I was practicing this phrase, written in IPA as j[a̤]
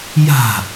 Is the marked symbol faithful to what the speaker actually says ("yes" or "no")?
yes